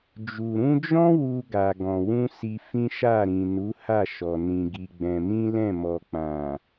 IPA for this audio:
d͡ʒ u˨ ɾ ũ˧ d͡ʒ ɔ̃˦ w u˧ ɡ a˨ ɡ ɔ̃˨ w ũ˧ s i˧ f ĩ˦ ʃ a˦˨ ɾ ĩ˨ n u˨˦ h a˦˨ ʃ ɔ˨ n ĩ˧ ɡ i˧ ɡ͡b ɛ̃˧ m ĩ˦ l ɛ̃˦˨ m ɔ˨ k͡p ã˨

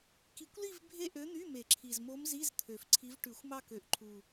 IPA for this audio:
k i˨˩˦ kʷ l i˥˧ v bʱ e˥˧ ʔ ø˧˥ n̪ y˧˥˧ m e˨˩˦ ǁʰ i˨˩ z m o˧˥ m z i˧˥˧ z t̪ʰ ø˨˩ f ǀʰ i˧˥ v ʈ ʉ˨˩˦ xʷ m ɑ˥˧ k ø˨˩˦ ʔ ǃʰ u˨˩

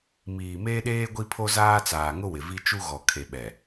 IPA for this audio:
m iː˨ m eː˦ ɗ eː˦ ɡʷ i˦ pʰ o˦ z aː˦ t͡s aː˨ ŋ ʊ˦ w ɪ˨ v i˦ t͡ʃ u˦ ɣ ɔ˨ kʰ e˨ ɓ ɛ˨

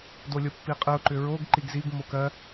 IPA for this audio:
d o lʲ o pː i qʼ ɯ ʊ̯ ǃ ʏ ɹ o ɡ ǃ i ɡ z i ɡ m o k ɜ

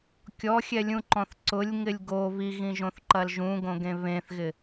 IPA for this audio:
kʲ ɔ xʲ ɛ lʲ ũ ǃ ɔ̃ θ ǀ ʊ lʲ ŋ ɪ lʲ ɡ o β i ɣ ĩ ʒ õ θ ǃ ɐ l ʒ ũ ɡ õ ɡ ẽ β ẽ θ ɣ ɪ

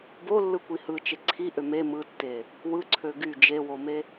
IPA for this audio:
b o lː ɯ kʷ i h ɯ t͡ʃ e ǀʰ i ʔ ø m e m ɯ tː e | w ɯ ǀʰ ø ɡ y d͡ʒ e w o m e

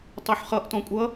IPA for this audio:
tˤ u ħ χ ʌ ʔ t ɔ̃ kʷʼ ʌ

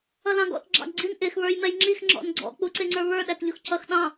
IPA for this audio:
ʌ l ɑ̃ ɡ ɔ̰ t ɡ͡ǁ ɑ̰ ɡ ɡ͡ǀ i n ʔ ɪ x β ə˞ j m ɛ j ŋ͡ǁ i x ŋ͡ǁ ɔ̰ n ɡ͡ǀ ɔ̰ k͡p u ǀ ɪ ŋ͡ǀ ə˞ β ə˞ ɗ æ t ʎ ʊ x cʰ ʌ x ɗ ɑ̃

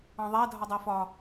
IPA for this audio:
ɑ̃ ðˤ æ dʱ ɒ dˤ æ f ɒ

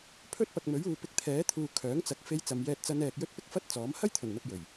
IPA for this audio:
pʰ ɵ˥ t̚ p ɐ˨ k̚ m ɵ˨˥ ɥ uː˨ p ɪ˧ k̚ t̪ʰ ɛː˨˥ t̪ʰ uː˨ kʰ œː˨˥ ŋ t͡s ɐ˨˥ k̚ f e˧ j t͡s ɐ˨˧ m j ɛː˧ t̚ t͡s ɐ˧ n ɛː˨ k̚ j ɵ˥ t̚ p ɪ˥ k̚ f ɐ˥ t̚ t͡s ɔː˨˥ m h ɐ˥ j t̪ʰ ɵ˨˩ n n̪ ɐ˨ p̚ j ɵ˨˩ ɥ

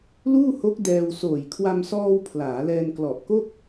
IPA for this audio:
l uː˥˩ h o˦˥ k̚ d ɛː˧ w s oː˨˩ j kʰ w a˧ m s ɔː˧ w pʰ l aː˩˦ l ɛː˧ n k l ɔ˨˩ ʔ k o˥˩ k̚

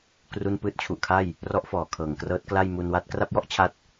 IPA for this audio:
k r u˥˩ n p ɯː˥˩ t̚ t͡ɕʰ u˨˩ ʔ kʰ a˥˩ j | r ɔ˦˥ ʔ f ɔː˨˩ kʰ ɤː˨˩ ŋ k r ɤː˦˥ t̚ k l a˥˩ j m u˧ n w a˥˩ t̚ k r a˥˩ p̚ j ɔ˥˩ ʔ t͡ɕʰ a˦˥ t̚

